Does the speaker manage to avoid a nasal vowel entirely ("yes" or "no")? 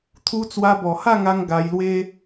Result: yes